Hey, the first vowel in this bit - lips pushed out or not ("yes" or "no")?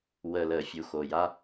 no